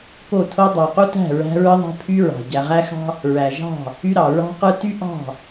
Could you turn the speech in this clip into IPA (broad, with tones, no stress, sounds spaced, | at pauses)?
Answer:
k o˦˨ tʰ o˦ dˤ ɑ˨ q u˦ t æ̤˦˨ ɹ æ̤˦ ɹ ɯ˦ ðˤ æ̤˦ pʰ y˦ ɹ ɑ̤˨ ɟ æ˨ ʁ æ˦ x ɑ̤˦ | ɹ æ˨ ʒ ɑ̤˦˨ | y˦ ɾ ɑ˨ ɹ ɑ̤˦ q ɯ˦ t y˦ ʔ ɑ̤˦˨